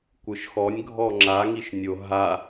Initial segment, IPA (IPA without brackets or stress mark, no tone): kʷ